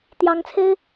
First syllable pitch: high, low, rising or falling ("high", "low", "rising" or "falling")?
rising